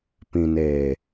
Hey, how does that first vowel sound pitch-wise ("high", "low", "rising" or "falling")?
low